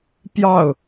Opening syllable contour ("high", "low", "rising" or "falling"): falling